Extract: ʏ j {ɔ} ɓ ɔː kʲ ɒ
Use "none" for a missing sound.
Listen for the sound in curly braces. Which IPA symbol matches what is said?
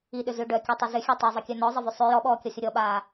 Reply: ɔ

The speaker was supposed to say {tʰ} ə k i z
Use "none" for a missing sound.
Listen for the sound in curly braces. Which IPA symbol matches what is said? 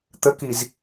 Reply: t̪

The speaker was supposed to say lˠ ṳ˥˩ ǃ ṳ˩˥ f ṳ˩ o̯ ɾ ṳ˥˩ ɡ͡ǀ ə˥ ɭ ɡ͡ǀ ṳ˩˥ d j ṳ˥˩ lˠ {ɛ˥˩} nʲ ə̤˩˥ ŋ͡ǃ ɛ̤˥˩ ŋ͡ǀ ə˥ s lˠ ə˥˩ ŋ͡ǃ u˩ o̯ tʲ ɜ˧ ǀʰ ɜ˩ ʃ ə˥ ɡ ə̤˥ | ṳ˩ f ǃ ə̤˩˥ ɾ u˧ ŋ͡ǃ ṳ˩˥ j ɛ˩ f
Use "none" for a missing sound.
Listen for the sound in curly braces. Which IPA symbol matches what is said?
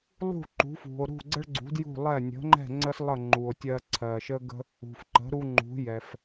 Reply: ɛ˥˩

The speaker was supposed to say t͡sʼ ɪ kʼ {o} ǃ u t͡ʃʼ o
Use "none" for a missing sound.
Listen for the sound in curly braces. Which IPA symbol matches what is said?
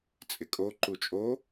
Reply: o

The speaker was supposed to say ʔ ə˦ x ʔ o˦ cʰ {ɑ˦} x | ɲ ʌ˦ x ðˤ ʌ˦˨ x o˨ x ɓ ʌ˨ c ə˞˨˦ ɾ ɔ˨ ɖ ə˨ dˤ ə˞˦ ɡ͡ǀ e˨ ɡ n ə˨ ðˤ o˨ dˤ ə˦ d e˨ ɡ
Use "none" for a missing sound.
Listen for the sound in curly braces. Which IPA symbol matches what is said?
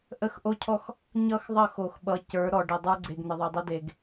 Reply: ɔ˦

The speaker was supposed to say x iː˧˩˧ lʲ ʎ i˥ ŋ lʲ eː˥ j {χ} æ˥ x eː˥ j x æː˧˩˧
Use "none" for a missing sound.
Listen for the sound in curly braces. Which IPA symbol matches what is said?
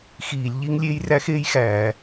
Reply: r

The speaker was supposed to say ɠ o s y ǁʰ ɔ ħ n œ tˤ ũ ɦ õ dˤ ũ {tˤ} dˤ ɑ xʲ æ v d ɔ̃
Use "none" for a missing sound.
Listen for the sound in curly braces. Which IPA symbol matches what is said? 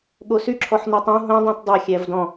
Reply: t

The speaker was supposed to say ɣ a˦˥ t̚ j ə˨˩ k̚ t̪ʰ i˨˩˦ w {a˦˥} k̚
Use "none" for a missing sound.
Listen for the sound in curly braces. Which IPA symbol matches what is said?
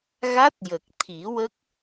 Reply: ə˦˥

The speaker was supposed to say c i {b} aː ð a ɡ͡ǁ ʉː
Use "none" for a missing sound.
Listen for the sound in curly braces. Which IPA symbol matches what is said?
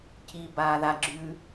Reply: b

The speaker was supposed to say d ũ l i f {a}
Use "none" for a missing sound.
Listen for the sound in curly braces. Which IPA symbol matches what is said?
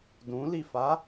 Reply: a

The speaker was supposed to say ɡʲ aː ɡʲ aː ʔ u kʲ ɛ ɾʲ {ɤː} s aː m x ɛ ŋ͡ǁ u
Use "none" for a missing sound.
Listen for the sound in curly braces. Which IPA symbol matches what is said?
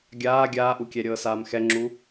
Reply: ɤː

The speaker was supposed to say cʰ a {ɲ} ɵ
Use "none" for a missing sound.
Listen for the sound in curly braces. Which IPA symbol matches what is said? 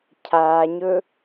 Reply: ɲ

